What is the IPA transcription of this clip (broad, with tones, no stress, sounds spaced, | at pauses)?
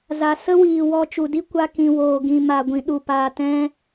z a˨ s ə˦ w iː˨ w ɔ˧ t͡ʃ u˨ d i˦ kʷ a˧ k ĩ˨ w oː˨ ɡ ĩ˨ m a˨ ɡʷ ĩ˨ ɗ u˨ p aː˨ t ɛ̃˧